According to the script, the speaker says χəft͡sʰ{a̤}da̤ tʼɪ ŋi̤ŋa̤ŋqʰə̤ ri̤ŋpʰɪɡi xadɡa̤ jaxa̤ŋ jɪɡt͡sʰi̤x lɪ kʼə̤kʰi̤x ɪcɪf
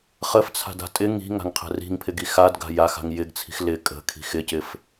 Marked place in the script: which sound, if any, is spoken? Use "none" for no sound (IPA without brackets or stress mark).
a̤